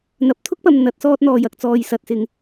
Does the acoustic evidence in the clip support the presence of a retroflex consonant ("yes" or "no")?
no